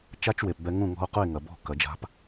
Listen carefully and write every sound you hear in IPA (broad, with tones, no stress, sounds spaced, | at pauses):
t͡ʃ a˥ t͡ʃ w e˩ p b ɛ˧ ŋ ũ˥˩ ŋ ɔ̤˥ o̯ q u˥˩ e̯ ŋ ɐ˩ b ɔ̤˥˩ k ɐ˩˥ d͡ʒ a̤˥ p